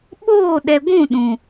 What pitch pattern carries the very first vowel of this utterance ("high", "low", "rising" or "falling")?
falling